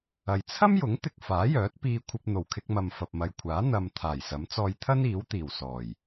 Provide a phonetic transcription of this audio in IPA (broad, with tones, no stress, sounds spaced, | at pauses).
ɐ˨ j t͡sʰ ɐ˥ m j ʊ˨˥ ŋ t̪ ɪ˧ k̚ f aː˨˥ j œː˨˥ t̚ p iː˥ kʷʰ ɐ˥ p̚ n̪ o˨˩ w kʰ ɪ˧ k̚ m ɐ˨ m f ɐ˨ p̚ m ɐ˨ j kʷʰ aː˨˥ n̪ ɐ˧ m t̪ʰ aː˨˩ j s ɐ˨˥ m t͡s ɔː˧ j t̪ʰ ɐ˥ n iː˨˥ w t̪ iː˨˩ w s ɔː˨˩ j